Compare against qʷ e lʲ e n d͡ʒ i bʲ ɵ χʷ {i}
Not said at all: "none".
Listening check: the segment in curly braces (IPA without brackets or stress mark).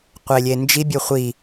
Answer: i